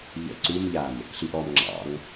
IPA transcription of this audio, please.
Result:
ʎə̰ ǀumʎam | ɬiʔɔmŋ͡ǁɑ̰ŋ

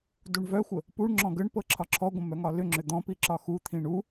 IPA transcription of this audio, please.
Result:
duɳvœxʷə | puɳŋ͡ǁɔ̃ ɡəɳpɤ ǁʰɒǁʰɔɡʷə̃ mœŋɒlʏŋ͡ǁʏ d̪ɔ̃ piǁɒxut̪ʰĩ ɳu

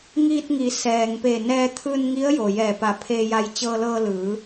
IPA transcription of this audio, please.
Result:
ŋiː˧t̚ŋi˩˧ sɛː˩ŋpe˧˩ nɛː˧t̪ʰɯː˧nŋi˧˥ə̯ jo˩ jɛː˧˩pa˧˩pʰeː˧ja˧j t͡ɕɤː˧lɤː˧lɯː˩˧

